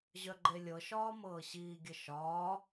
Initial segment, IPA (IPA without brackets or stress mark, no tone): ʑ